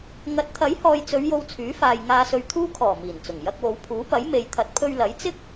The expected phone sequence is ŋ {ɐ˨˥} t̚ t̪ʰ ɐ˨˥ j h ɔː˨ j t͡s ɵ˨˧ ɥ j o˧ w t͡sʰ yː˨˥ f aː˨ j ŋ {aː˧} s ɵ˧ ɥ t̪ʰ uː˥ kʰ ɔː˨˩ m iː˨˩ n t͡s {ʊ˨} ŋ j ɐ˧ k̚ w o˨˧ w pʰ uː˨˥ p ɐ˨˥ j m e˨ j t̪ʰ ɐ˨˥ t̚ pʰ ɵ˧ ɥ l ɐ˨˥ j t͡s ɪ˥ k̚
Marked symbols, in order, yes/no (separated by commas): yes, yes, no